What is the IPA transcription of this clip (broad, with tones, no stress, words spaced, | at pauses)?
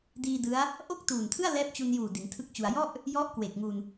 diː˧dɯ˦˥a̯ | ʔo˥˩k̚tuː˨˩ntʰɯ˥˩a̯ lɛː˦˥p̚t͡ɕu˧njuː˨˩ di˩˦ntʰɯ˥˩k̚t͡ɕu˧a̯ jɔ˥˩ʔ | jɔ˥˩ʔkwe˨˩k̚ŋu˧n